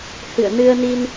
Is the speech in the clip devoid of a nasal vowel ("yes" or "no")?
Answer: yes